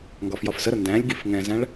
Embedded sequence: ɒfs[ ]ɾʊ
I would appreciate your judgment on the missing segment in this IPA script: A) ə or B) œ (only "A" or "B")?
A